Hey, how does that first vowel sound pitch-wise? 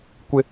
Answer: high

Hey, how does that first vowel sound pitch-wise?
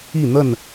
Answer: falling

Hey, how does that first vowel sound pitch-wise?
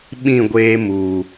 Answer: falling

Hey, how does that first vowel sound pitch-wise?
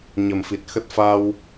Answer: low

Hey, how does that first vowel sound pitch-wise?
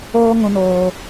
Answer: high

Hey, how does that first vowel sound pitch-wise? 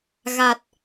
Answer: low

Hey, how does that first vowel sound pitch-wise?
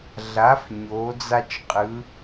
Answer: rising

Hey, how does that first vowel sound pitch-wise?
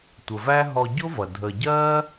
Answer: low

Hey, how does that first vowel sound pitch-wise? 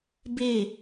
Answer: falling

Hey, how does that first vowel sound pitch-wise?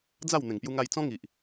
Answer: falling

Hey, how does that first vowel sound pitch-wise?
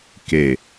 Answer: falling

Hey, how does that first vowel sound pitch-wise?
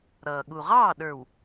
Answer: low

